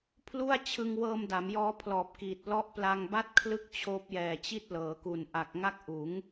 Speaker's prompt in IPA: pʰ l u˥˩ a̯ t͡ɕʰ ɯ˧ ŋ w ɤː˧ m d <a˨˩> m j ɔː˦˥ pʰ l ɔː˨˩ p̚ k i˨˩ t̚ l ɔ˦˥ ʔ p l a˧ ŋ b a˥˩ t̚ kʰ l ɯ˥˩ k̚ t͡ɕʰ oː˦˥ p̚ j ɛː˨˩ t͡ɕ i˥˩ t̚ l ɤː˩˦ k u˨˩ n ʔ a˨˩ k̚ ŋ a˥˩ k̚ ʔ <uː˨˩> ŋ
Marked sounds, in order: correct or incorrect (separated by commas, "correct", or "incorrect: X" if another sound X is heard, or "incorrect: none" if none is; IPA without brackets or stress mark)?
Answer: incorrect: a˩˦, incorrect: uː˩˦